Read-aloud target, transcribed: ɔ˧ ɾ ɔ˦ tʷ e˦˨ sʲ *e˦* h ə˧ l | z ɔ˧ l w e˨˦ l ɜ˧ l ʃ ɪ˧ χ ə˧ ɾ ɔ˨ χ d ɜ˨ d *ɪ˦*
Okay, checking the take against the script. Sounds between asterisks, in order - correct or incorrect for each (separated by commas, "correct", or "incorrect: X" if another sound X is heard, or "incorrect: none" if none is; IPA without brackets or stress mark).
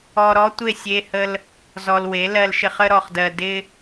incorrect: e˧, incorrect: ɪ˧